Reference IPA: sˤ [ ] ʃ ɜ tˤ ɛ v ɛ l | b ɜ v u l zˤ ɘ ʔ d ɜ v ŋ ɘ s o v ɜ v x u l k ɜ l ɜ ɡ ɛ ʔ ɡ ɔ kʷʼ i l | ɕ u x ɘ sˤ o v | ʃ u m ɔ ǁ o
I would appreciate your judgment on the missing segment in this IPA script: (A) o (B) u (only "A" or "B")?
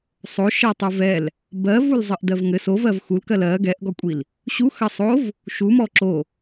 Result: A